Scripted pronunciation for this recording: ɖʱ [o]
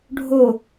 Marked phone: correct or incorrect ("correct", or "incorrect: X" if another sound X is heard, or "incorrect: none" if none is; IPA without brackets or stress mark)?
correct